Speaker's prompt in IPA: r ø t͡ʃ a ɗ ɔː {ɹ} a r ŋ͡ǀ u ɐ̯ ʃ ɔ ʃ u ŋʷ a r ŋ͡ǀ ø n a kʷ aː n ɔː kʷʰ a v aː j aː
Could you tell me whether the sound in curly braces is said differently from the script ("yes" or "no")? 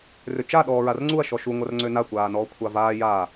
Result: no